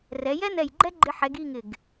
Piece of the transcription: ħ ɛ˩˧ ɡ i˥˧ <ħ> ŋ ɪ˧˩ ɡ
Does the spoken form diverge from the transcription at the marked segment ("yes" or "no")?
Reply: yes